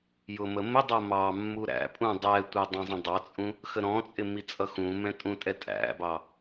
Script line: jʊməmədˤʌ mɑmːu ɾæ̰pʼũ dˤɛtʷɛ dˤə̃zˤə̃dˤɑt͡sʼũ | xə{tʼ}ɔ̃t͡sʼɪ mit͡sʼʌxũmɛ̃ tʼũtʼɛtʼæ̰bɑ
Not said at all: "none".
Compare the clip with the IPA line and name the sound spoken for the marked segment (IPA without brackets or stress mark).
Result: ɾ